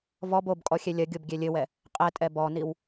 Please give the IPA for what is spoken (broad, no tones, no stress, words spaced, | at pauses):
vɔb obkʼɔ xʲɛlʲɐɡʲob ɡʲɛlʲɘwɛ | qʼɛtʼɛ bɔniw